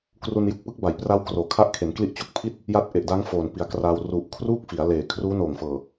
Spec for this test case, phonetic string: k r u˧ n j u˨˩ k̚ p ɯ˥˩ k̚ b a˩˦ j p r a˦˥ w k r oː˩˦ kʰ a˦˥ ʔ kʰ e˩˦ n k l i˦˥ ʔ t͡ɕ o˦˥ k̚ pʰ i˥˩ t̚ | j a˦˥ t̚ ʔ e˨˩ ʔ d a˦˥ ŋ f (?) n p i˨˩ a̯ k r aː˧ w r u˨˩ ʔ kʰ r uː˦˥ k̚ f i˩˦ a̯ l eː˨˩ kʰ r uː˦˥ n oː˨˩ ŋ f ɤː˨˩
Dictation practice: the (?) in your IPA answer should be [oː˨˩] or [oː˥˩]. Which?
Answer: oː˨˩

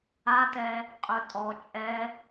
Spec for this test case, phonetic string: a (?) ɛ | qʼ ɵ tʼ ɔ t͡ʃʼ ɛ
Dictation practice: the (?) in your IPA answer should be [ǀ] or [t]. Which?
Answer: t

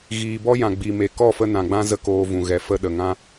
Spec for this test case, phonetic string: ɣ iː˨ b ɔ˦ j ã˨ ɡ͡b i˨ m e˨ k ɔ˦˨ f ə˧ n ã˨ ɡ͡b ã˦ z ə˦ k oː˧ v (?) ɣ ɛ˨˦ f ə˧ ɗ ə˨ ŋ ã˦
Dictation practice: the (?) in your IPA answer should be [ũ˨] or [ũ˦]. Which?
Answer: ũ˨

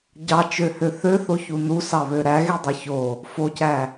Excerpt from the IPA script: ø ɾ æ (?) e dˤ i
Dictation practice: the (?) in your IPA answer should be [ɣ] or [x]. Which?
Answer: ɣ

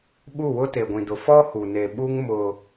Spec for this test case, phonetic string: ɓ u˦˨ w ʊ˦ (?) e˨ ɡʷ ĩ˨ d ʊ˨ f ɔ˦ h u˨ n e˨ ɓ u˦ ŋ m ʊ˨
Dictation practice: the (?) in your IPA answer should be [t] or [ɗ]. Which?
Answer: t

